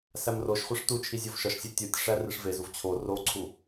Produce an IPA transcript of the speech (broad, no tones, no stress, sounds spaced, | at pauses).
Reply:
s æ m r o ʃ χʷ e ʂ t u t͡ʃʰ i zʲ o v ʃ ɒ ʃ sʲ æ tʲ u tʲ ʂ æ r i ʂ v e z u v t͡ɕʰ o r o ǀʰ u